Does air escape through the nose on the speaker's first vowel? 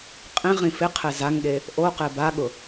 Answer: yes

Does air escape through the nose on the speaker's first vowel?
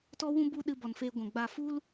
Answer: no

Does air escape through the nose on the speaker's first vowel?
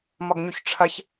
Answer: no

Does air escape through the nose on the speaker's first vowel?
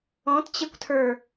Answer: yes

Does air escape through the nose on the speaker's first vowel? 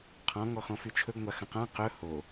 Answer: yes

